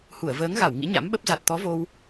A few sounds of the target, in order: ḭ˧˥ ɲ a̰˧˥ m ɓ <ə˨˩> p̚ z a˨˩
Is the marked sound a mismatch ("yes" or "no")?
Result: yes